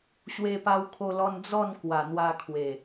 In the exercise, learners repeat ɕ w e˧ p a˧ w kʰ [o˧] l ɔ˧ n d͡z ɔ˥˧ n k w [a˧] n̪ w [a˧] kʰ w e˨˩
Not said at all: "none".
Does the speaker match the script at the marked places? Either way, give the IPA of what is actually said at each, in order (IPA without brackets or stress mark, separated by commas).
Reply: o˧, a˨˩, a˧